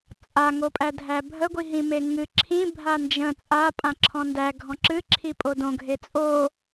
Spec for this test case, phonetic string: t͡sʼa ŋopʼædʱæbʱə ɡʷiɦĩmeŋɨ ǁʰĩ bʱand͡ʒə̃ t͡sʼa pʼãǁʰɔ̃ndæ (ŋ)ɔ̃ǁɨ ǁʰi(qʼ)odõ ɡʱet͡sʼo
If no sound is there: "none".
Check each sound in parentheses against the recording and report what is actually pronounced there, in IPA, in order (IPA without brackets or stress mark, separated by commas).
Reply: ɡʱ, pʼ